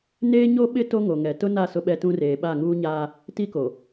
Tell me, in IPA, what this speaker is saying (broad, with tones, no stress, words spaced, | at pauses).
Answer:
neː˦ɲo˦ɓɪ˦ to˦ŋo˨ŋɛ˨ tʊ˦na˦˨ sʊ˦ɓɛ˦tũ˦reː˨ ɓa˦˨ŋuː˦ɲaː˦ | ti˦ko˨